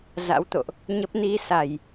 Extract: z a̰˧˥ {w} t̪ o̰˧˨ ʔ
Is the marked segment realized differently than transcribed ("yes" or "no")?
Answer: no